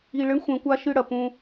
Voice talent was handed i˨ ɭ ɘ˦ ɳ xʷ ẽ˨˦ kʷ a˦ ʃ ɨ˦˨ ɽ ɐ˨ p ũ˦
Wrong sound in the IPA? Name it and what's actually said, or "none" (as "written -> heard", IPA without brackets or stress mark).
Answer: none